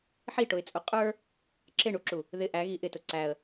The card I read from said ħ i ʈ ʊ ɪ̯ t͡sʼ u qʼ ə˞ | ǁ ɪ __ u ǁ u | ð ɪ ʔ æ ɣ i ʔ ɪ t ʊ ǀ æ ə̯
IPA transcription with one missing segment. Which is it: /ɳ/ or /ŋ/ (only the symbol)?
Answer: ɳ